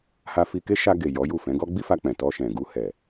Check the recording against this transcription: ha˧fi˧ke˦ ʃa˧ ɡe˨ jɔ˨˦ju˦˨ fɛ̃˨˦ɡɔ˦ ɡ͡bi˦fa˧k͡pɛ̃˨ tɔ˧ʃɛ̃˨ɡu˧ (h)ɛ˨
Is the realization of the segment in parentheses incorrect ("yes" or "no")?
no